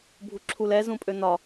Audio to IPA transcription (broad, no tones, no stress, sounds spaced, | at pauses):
bʱ u ǁʰ u l ɛ z ũ pʼ ø n̪ ɒ